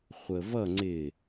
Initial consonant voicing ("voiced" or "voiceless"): voiceless